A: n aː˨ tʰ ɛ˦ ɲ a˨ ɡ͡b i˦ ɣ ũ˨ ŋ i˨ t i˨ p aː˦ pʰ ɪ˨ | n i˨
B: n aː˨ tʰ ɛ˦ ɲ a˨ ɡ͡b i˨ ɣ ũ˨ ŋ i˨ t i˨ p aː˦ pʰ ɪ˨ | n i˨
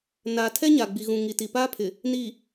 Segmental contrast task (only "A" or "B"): B